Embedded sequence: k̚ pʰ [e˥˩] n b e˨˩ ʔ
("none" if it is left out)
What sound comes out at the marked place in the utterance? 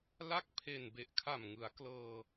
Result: e˨˩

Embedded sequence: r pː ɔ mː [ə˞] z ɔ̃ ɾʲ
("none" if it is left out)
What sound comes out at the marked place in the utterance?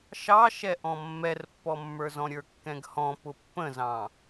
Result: ə˞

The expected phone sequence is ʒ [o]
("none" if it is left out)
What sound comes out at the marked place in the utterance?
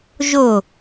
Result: o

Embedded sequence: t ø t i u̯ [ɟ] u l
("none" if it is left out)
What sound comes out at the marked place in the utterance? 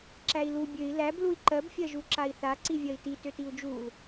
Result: d͡ʒ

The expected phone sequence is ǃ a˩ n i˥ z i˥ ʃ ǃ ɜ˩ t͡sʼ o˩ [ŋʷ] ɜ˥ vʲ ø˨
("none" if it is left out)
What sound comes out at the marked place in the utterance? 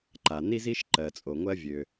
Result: ŋʷ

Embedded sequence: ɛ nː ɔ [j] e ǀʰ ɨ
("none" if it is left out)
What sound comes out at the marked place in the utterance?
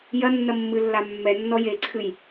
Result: j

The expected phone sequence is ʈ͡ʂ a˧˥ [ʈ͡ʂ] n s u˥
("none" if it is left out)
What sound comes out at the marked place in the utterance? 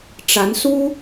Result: none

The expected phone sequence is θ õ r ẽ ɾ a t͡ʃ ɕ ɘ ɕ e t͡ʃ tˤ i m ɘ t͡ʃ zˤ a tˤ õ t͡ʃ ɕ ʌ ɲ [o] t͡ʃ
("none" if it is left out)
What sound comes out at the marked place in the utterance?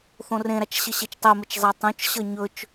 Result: ɵ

